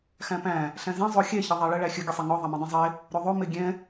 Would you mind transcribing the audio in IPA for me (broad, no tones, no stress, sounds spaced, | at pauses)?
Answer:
x æ̃ p æ̃ | ɬ æ̃ z ɛ̃ zˤ o xʲ ɛ ç ə ðˤ æ ɭ ə ɭ æ xʲ ə ɡʲ ə sˤ ɛ ŋ ɔ ðˤ a m ɛ̃ dˤ æ̃ zˤ e | ɾ o ðˤ o m e ɡʲ ɛ̃